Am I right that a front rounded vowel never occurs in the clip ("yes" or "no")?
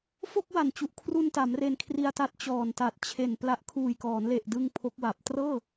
yes